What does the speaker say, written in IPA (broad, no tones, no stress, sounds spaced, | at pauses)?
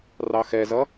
r ɑ x ɛ z ʌ